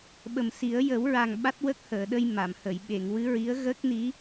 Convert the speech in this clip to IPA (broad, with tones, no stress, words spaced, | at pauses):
ɓə˨˩msi˨˩˦ə̯ jə˨˩˦wɹa˨˩ŋ ɓa˦˥t̚wə˦˥k̚həː˨˩˨ɗə˧j ma˨˩˨mhə˨˩˨j ɓe˨˩˨ŋwɨ˧˥ɹi˧˥ə̯ ɣə˦˥k̚ni˧˥